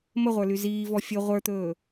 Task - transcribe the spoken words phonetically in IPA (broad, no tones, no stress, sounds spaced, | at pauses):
m ə ʁʷ ə˞ l y z iː v ɔ fʲ ɵ ʁʷ ə˞ t̪ ɵː